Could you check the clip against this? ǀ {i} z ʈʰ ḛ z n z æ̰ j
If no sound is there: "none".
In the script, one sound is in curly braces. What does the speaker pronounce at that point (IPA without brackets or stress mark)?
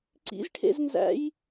ḭ